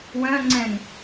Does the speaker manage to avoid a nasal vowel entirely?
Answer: no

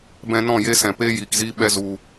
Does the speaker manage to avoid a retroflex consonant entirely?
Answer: yes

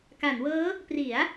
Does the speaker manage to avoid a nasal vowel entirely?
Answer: yes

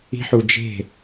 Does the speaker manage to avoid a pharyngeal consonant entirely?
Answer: no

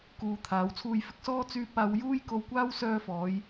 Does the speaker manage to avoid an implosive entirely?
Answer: yes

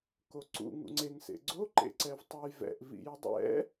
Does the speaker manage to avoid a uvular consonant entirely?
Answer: yes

